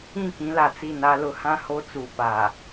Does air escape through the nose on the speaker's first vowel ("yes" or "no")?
yes